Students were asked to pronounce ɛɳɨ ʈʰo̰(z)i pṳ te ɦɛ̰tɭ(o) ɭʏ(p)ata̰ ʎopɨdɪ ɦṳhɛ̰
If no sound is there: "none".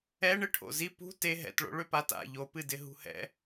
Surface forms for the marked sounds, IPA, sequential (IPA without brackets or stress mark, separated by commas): z, o̰, p